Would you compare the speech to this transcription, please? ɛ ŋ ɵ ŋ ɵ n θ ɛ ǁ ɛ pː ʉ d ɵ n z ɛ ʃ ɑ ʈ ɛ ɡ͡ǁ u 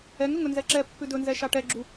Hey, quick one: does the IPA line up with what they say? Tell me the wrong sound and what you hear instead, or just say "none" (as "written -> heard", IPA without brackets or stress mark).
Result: θ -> z